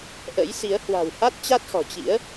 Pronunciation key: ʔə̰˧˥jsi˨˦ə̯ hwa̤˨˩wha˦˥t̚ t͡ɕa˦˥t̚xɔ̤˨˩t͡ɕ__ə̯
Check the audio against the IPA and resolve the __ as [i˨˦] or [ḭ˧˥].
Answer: ḭ˧˥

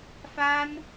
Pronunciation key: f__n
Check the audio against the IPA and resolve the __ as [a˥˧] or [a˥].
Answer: a˥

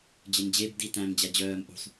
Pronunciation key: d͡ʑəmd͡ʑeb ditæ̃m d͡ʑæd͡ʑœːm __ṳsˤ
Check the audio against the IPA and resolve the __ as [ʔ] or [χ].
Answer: ʔ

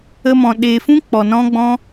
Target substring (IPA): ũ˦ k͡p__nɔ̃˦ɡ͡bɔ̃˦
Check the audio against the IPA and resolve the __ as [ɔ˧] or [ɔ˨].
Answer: ɔ˨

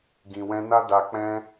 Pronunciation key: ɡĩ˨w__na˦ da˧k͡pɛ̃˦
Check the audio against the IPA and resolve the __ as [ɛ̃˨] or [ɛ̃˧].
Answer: ɛ̃˧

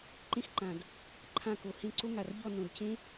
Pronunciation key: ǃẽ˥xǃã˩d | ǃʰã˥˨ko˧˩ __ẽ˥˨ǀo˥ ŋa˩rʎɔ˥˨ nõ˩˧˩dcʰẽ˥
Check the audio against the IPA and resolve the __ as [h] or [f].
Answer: h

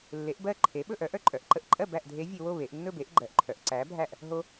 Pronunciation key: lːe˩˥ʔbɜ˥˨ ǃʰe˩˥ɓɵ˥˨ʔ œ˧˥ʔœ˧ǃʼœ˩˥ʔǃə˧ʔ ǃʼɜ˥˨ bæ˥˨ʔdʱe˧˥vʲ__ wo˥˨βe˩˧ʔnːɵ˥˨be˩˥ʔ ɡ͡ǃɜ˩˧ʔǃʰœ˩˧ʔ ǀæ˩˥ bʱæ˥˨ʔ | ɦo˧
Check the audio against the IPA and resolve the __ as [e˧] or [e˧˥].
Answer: e˧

